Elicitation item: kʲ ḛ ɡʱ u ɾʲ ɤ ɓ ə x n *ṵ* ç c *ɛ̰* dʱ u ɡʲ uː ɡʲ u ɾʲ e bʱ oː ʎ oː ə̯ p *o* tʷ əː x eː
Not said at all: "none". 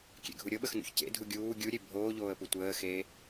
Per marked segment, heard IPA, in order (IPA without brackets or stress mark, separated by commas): ṵ, ḛ, u